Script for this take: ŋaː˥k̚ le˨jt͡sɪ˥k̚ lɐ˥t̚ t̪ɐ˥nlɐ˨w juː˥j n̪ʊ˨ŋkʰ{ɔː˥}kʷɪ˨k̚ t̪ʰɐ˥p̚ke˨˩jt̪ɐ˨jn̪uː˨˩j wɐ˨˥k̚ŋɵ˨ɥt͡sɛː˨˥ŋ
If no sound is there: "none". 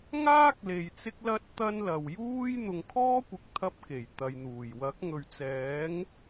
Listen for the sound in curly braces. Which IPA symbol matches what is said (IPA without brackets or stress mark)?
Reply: ɔː˥